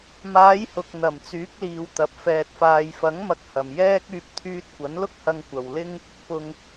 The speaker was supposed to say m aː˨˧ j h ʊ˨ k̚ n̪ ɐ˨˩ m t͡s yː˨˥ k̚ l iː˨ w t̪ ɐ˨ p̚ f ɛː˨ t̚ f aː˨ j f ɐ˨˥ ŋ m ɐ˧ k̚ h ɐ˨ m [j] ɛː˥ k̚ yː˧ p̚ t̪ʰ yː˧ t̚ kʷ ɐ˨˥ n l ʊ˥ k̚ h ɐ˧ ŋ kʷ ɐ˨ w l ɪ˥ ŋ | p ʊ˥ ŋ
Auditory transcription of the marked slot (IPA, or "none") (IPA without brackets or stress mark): j